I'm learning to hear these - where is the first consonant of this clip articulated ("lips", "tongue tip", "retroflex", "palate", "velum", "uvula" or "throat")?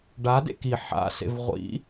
retroflex